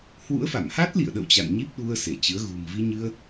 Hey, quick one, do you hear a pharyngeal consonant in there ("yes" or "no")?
no